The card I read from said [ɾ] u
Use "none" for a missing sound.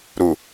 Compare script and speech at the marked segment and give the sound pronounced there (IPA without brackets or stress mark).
ɾ